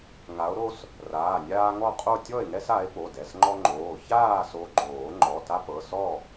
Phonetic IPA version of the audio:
ŋ a˨˦ o̯ ɾ o˦ s | r aː˩˧˩ nʲ aː˦ ŋ ɔ˥˨ qʼ o˥˨ tʲ ɔ˥˨ e̯ ŋ ɛ˦ s a˨˦ e̯ p o˩˧˩ d ɛ˩˧˩ s ŋ͡ǃ ɔ˦ ŋ͡ǃ oː˩˧˩ ç aː˥˨ s o˨˦ ɡ͡ǃ oː˨˩˦ ŋ͡ǃ ɔ˩˧˩ t a˦ p ɤ˩˧˩ s ɔ˥˨

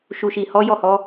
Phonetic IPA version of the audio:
ʃ u˨ ʃ i˨ h ɔ˨˦ j ɔ˦˨ h ɔ˨˦

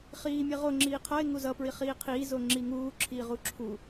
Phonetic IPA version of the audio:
χ iː mʲ e ʁ o ŋ͡ǁ iː qʰ ʌ ɪ̯ ŋ u z ʌ p ɹ i χ iː qʰ iː z o ŋ͡ǁ i ŋ uː ǁʰ iː ʁ u ǁʰ u

